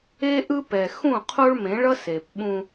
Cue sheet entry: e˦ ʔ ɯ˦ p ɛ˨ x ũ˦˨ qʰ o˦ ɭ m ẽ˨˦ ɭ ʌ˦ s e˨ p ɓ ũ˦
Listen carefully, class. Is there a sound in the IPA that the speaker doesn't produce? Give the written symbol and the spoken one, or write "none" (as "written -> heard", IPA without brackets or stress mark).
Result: none